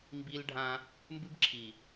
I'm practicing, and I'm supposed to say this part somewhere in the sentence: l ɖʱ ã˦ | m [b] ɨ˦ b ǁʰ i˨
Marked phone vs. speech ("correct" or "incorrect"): correct